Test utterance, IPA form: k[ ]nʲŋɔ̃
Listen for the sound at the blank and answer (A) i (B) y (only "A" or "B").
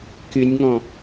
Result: B